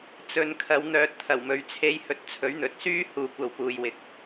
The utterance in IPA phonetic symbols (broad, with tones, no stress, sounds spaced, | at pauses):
t͡s ɵ˨ n kʰ ɐ˨ w n̪ œː˨ t̚ t̪ʰ ɐ˨˩ w m ɵ˨˥ ɥ t͡sʰ e˧ j h ɵ˨˥ t̚ t͡sʰ ɵ˨˥ ɥ n̪ ɵ˨ t̚ s yː˥ h uː˧ kʷ ɐ˧ w p uː˨ j w ɪ˨ k̚